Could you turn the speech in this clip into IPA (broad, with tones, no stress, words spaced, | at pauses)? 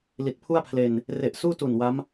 li˨˩t̚pʰu˥˩a̯pʰle˧n | re˨˩ʔ suː˥˩tu˨˩n wa˦˥m